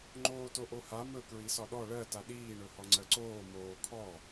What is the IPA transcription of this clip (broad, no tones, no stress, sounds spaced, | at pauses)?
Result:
ŋ͡ǃ oː t o ʔ o h a m ɵ k ɹ i s ɒ ɗ ɔ ɭ ɜ t a ɗ iː ɳ ɵ h ɔ ŋ͡ǀ ɜ ǀ oː m oː kʰ ɔ